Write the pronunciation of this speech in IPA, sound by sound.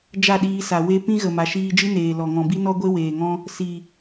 d͡ʒ a˦˨ ɗ iː˧ s a˨ w e˧ p ĩ˦ ɣ ə˨ m a˨ ʃ iː˧ d͡ʒ ɨ˦ n eː˨ l ɔ˨ ŋ ɔ̃˨ b i˦ n ɔ˦ ɡʷ e˦ w eː˨ ŋ ɔ̃˦ | s i˨

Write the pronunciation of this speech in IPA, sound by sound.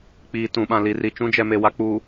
k͡p iː˨ t ũ˨ ɓ ã˨ l i˨ r i˨ t͡ʃ ũ˦ d͡ʒ ɛ˨ m e˨ w a˨ k͡p u˨

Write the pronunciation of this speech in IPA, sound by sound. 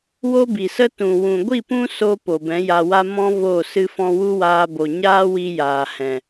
w o˦ b i˨ s ə˦ t ũ˨ w ũ˨ ɡʷ i˦˨ p ũ˦ s o˧ p o˨ b ɛ̃˨˦ j a˧ w a˦ m ɔ̃˧ v o˦˨ s ɨ˧ f ɔ̃˧ w u˦ w aː˧ b o˨ ɲ aː˦ w i˧ j aː˨ h ɛ̃˨

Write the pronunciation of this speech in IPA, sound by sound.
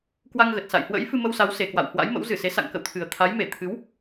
k w a˧ ŋ ɣ ə˨˩ t̚ s a̰˧˨ j h w ə̰˧˥ j f ɨ˧ m ə˧ w s a˨˦ w s e˨˩ k w a̰˧˨ w h w a̰˧˥ j m ə̰˧˥ w z ɨ˧˩ s e˨˦ s a̰˧˨ ŋ k ə̰˧˨ w t̪ʰ ɨ˨˩ ə̯ t̪ʰ a˨˦ j m e˧˩ t̪ʰ ɨ˨˦ w

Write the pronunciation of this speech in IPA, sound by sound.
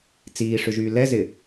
t͡s iː ʂ ʏ ʒ yː l ɛ z ɪ

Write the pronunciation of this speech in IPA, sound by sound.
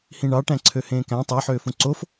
h ĩ ɳ ɑ ʈ æ̃ ǀʰ ø h ẽː k æ̃ tˤ i ħ øː f ũ ǀ o f

